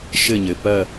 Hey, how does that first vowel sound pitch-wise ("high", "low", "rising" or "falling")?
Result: falling